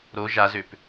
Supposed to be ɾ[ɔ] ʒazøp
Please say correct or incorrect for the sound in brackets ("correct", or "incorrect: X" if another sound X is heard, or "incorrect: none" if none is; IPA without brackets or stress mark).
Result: incorrect: o